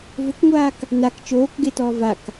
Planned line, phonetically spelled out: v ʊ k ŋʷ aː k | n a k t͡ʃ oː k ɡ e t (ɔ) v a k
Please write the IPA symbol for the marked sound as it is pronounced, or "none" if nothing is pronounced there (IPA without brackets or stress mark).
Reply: ɔː